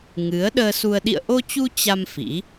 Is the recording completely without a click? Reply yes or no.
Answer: yes